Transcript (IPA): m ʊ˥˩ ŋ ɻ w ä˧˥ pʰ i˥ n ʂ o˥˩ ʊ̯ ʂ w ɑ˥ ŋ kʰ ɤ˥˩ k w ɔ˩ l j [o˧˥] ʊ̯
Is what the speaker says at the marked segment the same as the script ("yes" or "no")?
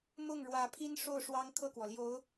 yes